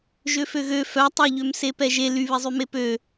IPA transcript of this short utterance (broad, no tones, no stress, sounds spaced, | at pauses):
ʒ ø f ø ɣ ø f œ tˤ œ ʎ ø m s e p ɛ ʒ e l y β e zˤ y m e p ø